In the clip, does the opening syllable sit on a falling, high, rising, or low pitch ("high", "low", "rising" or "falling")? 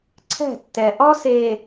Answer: falling